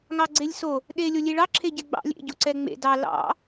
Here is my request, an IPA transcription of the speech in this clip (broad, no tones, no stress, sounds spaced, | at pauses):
ŋ ɑ ɡ͡ǀ e lʲ s o | ɗ e lʲ o lʲ e ɭ ɑ ǁʰ e ɟ ɛ ɡ͡b ɑ̰ lʲ ḛ ɟ o ǀ ɛ ŋ͡m ḛ d ɑ l ɑ̰